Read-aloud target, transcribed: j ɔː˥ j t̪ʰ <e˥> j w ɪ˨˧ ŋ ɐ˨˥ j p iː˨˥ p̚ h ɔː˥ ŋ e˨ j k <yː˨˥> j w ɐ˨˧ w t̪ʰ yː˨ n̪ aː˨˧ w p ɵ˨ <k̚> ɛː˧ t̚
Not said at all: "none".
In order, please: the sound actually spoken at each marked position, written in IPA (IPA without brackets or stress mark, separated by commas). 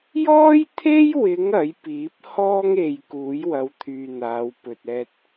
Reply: e˥, uː˨˥, t̚